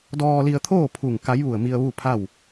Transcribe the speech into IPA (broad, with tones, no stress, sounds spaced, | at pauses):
d ɔː˧ l i˧ ə̯ t̪ʰ oː˥˨ pʰ u˧˩ ŋ k a˧˥ j ʋ u˧˩ ə̯ m i˧ ə̯ ʋ u˥˨ pʰ a˥˨ w